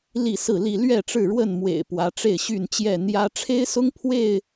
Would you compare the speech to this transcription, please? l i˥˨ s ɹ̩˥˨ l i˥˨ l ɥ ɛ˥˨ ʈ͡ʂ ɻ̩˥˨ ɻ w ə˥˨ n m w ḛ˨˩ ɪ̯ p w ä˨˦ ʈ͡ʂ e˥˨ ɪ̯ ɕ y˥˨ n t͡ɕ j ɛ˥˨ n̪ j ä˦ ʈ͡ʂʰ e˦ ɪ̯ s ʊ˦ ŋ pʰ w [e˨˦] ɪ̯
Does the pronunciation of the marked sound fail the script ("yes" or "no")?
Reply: yes